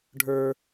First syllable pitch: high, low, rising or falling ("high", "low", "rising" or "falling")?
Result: high